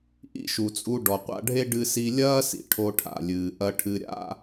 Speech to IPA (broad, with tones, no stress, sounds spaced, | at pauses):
ʔ ḭ˥ ʃ u˩ t͡sʼ u˧ ɖ ɔ˩ qʷ a̰˧ ɖʱ e˥ ɖ ɨ˧ s i˧ lʲ ɐː˥ s ḭ˩ ʈʰ o˧ ʈʰ a̰˩ lʲ ɨː˩ ʔ ɐ˧ ʈʰ ɨ˧ ɾʲ a̰˥